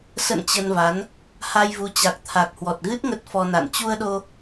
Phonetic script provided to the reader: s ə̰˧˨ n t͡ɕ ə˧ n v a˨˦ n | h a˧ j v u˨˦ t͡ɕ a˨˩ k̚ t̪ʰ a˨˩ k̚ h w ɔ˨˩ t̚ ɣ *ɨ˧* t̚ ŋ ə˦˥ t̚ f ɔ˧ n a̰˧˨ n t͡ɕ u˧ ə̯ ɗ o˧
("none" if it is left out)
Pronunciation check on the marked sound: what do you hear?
ɨ˦˥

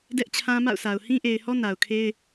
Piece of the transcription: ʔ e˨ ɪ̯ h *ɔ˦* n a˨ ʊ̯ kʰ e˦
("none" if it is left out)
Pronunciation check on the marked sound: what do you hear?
ɔ˦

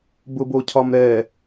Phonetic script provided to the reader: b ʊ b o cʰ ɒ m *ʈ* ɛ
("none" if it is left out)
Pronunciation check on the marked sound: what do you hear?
ɾ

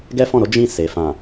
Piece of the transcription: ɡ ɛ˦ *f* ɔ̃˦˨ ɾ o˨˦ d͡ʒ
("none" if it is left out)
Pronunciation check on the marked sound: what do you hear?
f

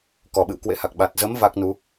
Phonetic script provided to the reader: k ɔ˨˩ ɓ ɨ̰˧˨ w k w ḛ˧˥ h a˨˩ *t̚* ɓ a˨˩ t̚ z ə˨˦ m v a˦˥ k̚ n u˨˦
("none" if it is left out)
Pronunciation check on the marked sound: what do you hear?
k̚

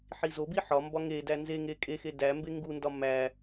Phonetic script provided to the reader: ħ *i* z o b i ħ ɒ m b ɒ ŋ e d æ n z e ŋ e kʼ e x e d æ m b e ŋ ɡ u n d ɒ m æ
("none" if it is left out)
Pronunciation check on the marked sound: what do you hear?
i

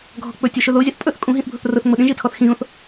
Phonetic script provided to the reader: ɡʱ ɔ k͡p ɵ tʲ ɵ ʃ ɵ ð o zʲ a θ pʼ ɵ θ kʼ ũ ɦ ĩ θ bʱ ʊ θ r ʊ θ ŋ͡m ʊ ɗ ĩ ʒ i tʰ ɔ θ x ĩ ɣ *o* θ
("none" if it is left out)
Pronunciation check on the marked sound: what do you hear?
õ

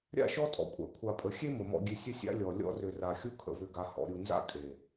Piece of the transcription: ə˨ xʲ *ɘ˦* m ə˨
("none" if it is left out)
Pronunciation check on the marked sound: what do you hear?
e˦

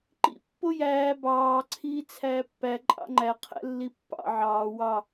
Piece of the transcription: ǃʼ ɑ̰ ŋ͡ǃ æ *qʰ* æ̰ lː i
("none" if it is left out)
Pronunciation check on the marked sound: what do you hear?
qʰ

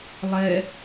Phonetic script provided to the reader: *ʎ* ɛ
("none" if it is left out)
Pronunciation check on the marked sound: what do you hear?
lˠ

